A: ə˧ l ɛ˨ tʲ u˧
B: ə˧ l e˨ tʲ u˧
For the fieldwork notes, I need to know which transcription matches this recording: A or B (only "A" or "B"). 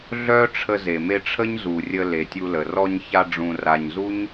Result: B